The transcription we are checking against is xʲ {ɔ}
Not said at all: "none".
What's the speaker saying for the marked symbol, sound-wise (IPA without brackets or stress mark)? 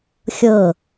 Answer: ɤ